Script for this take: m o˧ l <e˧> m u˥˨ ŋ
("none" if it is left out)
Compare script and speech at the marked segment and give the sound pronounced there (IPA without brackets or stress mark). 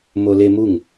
e˧